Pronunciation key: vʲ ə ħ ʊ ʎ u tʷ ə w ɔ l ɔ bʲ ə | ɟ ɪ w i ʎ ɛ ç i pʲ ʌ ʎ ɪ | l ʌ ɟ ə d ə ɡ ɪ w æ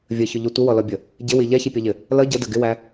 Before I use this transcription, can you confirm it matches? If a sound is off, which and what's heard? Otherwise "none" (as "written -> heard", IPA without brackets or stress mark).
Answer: ħ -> ç